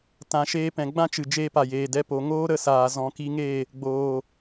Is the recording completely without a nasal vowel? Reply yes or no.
no